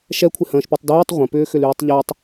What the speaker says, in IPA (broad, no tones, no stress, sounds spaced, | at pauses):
ʃ ɛ kʷʰ ɪ h ə̃ː ʃ p œ tˤ d yː tˤ ʁʷ ə̃ p ʏː x ʏ l yː tˤ ʎ ɛ tˤ